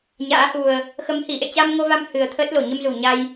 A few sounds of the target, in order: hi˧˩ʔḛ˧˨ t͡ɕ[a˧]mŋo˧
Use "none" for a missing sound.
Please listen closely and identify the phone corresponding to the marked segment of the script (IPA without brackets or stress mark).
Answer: a˧